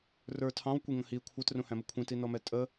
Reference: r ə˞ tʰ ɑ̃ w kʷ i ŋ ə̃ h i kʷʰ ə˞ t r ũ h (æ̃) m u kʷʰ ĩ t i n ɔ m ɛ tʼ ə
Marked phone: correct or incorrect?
correct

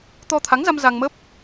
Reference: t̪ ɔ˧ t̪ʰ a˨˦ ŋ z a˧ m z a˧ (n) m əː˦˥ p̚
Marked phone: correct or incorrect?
incorrect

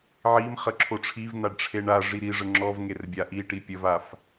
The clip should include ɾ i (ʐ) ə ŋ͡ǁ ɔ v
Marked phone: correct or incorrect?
correct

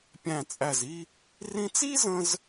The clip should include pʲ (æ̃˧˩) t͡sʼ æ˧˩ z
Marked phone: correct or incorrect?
correct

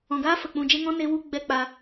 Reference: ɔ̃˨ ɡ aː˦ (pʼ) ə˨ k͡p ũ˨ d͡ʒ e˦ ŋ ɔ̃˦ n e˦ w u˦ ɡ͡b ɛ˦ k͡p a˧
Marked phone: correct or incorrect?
incorrect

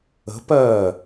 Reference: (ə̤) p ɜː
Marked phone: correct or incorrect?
correct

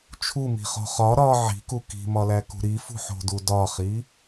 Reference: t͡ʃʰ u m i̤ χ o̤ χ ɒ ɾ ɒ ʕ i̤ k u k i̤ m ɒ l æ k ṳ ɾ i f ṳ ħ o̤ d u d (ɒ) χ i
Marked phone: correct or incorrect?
correct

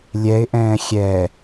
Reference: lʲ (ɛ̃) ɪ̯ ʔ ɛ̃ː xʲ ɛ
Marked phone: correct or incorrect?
incorrect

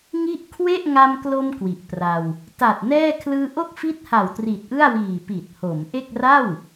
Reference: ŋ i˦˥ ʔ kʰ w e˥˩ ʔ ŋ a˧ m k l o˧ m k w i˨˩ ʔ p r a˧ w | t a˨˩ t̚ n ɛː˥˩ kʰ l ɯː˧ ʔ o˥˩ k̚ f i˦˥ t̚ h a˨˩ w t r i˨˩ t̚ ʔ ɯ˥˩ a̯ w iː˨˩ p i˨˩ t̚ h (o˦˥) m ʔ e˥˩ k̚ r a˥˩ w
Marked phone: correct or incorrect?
incorrect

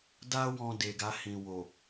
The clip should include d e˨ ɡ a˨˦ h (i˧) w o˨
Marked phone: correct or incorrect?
incorrect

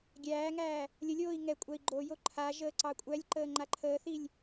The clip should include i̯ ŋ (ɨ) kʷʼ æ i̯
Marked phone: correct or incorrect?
incorrect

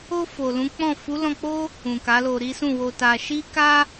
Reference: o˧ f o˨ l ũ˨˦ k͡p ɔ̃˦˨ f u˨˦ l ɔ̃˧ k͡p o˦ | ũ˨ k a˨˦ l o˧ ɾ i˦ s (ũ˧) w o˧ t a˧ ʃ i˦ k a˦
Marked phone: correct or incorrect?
incorrect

